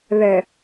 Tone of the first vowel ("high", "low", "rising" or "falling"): low